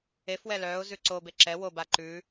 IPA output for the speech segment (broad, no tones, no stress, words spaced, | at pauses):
efwɛ lœːʊ̯ zʉǀobe ǁɛ woba ǃʉ